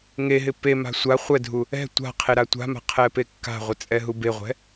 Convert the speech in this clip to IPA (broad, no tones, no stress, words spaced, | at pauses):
ŋeɦɪ pema̤ sʷa χʷɛdʱu | ɛ̤ tʷa̤ qʰeɾatʷa̤ma̤ qʰɛpekːa̤ʁʷɪ t͡sʼɛɦubeʁʷɛ̤